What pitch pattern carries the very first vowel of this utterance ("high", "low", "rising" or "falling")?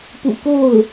low